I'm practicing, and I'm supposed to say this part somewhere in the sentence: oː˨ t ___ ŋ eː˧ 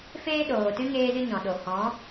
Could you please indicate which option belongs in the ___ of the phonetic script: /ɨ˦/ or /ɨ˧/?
ɨ˦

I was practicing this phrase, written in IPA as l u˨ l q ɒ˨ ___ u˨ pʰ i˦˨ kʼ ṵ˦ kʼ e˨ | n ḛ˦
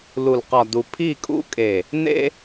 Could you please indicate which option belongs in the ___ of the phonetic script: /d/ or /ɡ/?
d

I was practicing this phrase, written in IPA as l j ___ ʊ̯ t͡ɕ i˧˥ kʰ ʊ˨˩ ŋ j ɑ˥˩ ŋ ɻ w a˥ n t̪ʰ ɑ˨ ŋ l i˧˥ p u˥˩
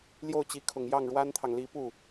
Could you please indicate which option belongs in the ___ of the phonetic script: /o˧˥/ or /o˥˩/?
o˥˩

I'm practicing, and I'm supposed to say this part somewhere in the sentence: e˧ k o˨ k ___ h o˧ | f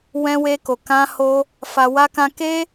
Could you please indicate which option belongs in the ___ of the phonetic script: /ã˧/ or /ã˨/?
ã˧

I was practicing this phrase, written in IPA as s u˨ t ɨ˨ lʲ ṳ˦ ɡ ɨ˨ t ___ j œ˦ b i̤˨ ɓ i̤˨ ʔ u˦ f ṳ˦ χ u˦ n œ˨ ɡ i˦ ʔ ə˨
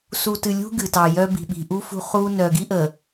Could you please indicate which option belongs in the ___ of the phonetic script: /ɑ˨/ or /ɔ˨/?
ɑ˨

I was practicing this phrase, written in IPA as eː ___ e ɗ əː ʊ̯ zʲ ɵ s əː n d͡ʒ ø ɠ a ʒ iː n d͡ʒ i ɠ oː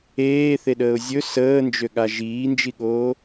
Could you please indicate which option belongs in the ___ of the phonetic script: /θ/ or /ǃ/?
θ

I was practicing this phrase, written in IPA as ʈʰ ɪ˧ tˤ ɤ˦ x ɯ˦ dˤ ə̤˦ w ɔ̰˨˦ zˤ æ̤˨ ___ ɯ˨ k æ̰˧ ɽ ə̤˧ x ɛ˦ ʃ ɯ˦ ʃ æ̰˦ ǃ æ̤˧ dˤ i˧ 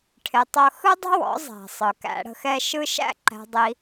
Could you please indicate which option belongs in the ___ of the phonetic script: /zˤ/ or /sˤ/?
sˤ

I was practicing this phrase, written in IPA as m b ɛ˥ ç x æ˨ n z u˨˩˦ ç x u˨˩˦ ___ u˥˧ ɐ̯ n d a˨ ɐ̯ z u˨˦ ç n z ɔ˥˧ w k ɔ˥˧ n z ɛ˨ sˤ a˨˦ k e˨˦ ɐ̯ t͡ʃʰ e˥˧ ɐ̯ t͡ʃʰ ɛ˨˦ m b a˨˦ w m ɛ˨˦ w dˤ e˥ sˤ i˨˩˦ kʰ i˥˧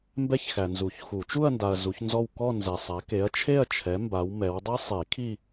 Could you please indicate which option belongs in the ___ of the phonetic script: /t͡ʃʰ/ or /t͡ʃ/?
t͡ʃ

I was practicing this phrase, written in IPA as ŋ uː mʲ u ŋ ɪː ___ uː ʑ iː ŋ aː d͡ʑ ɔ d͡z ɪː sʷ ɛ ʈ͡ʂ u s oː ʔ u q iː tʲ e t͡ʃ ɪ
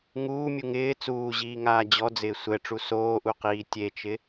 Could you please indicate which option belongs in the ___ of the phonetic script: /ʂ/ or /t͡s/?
t͡s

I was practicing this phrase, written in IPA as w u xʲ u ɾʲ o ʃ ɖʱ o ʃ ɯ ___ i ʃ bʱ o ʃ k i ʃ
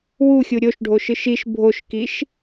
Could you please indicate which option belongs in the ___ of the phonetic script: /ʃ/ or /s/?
ʃ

